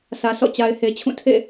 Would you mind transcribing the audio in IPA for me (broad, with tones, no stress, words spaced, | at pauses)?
sʰä˨sʰɔ̰˦˨ t͡ɕa˨ɪ̯he˨t͡ɕʰũ˦˨ tʰḛ˦˨